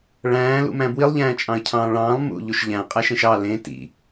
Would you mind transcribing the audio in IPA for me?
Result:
ɭ æ̃ː l ṵ m æ̃ b w i lˠ ʎ æ̃ː t͡ʃʼ ɑ̃ ə̯ cʰ ɑ̃ː ɭ ɑ̃ː lˠ m ṵ ʎ u ʃ ʎ æ̃ qʼ æ ʃ ẽ ʃ ɑ l ẽ t ḭ

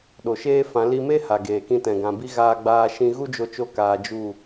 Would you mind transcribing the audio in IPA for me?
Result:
ɗ o˨ ʃ eː˦ f ã˨˦ l i˧ m e˦ h a˨ ɡ eː˨ k ĩ˧ t ɛ̃˨ ɡ ã˨ b i˧ ɣ aː˧ ɡ͡b aː˧ ʃ ĩ˧ ɣ u˦ d͡ʒ o˧ t͡ʃ o˧ k aː˧ d͡ʒ u˦˨

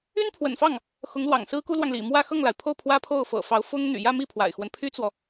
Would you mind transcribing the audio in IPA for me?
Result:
y˥ n pʰ w ə̰˨˩ n f ɑ˥˩ ŋ | x ʊ˧˥ ŋ l w ɑ̰˨˩ ŋ s ɹ̩˥ k u˥ l w ɑ˨ ŋ l ḭ˨˩ m w ä˥˧ x ɤ˥˩ ŋ l a˩ ɪ̯ pʰ o˥˩ ʊ̯ pʰ w ä˥ pʰ o˥˩ ʊ̯ f ɤ̰˨˩ f ɑ˧˥ ʊ̯ f ʊ˥ ŋ n̪ y̰˨˩ j ä˥˧ m i˥˩ pʰ w a̰˨˩ ɪ̯ x w ə˦ n pʰ y˥ t͡s w ɔ˨

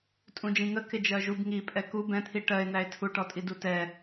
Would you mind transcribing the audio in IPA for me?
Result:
tʼ ũ d͡ʒ ĩ ŋ ə k ɪ d͡ʒ ɜ ʒ u b ŋ i pʼ ɛ k u b ɛ̃ t̪ʰ i ʈ ɜ e̯ n̪ æ e̯ tʰ u ʈ ɔ tʼ i d u t ɛ

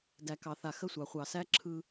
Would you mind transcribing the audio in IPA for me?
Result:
d æ˨ k ɑ˨ θ a˨ x ə˦ sʷ ɑ˨ χʷ ɑ˨ s æ˦ ǁʰ ɯ˦

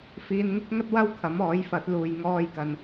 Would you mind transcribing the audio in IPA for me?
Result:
f iː˨ n ŋ ɪ˥ k̚ ŋ ɐ˥ t̚ w ɐ˥ w kʰ ɐ˨˥ m ɔː˨˥ j f ɐ˨˥ t̚ l uː˨ j ŋ ɔː˥ j k ɐ˨ n

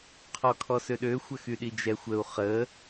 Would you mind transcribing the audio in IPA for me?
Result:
qʰ ɔ kʰ ɔ s ø ɗ ø xʷ ə x y ɗ i d͡ʒ ɛ xʷ ə u̯ χ ə

